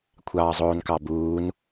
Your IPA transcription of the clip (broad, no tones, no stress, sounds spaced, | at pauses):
kʷʰ ɑː zˤ oː n k ɑ b uː n